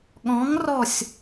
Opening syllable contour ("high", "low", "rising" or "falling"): rising